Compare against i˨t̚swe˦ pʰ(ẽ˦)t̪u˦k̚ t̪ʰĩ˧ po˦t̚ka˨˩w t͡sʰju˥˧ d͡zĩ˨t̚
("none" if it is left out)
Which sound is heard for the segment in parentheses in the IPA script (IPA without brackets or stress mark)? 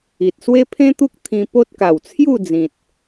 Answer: ẽ˦